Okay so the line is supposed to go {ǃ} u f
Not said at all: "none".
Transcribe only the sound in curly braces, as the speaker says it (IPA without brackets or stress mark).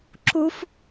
ǁ